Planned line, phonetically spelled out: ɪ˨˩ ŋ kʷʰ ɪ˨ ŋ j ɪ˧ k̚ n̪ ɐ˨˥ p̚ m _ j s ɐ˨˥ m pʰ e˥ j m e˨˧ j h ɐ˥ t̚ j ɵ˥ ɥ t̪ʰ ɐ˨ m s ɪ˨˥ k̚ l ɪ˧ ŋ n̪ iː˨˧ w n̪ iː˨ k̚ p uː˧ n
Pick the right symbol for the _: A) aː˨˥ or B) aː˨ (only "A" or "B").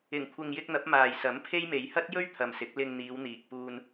B